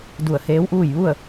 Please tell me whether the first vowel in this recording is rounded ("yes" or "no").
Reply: yes